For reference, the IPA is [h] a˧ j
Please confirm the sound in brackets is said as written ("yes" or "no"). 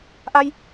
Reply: no